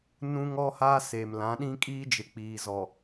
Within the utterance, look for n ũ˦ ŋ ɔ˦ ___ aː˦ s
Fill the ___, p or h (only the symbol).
h